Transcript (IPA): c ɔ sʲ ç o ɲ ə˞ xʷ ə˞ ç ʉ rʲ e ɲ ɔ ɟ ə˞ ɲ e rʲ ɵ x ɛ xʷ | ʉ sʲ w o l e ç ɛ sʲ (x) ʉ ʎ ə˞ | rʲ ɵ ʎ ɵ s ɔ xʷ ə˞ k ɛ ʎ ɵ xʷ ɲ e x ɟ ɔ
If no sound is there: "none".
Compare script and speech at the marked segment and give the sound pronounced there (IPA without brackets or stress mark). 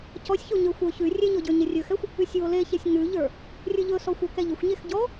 ŋ